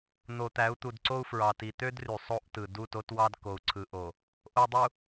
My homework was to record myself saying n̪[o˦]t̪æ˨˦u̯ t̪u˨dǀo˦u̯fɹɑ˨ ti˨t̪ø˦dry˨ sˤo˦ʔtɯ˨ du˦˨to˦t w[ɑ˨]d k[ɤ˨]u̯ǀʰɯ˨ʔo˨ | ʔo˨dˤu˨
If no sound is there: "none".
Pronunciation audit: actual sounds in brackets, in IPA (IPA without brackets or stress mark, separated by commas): o˨, ɑ˦, o˨